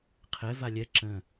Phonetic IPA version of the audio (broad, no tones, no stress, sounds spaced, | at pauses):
qʰ ɛ v a lʲ ɛ ǁ ə̃